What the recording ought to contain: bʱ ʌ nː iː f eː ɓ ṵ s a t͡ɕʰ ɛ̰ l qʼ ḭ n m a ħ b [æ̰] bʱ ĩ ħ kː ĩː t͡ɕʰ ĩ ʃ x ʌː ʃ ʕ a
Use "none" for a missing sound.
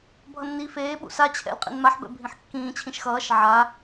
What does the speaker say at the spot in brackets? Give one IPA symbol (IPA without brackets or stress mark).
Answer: ɛ̰